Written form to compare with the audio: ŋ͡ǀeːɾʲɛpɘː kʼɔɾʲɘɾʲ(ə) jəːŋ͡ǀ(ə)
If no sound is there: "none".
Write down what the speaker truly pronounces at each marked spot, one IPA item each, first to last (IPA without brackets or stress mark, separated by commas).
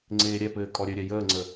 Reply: ɛ, ə